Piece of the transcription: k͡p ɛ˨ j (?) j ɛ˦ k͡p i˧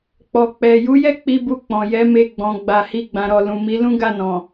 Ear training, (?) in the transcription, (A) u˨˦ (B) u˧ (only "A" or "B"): A